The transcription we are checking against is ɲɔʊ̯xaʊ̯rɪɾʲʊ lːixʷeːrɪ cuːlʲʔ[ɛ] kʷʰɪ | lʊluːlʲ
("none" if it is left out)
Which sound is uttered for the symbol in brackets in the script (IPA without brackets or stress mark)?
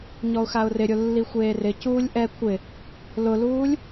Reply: ɛ